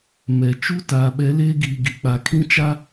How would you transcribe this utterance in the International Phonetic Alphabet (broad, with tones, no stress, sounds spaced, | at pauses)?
m ɛ˨ t͡ʃ u˦ t aː˨ ɓ ɛ˨˦ l eː˦ ɡ iː˨ ɡ i˨ k͡p a˨ kʰ ĩ˦ t͡ʃ a˦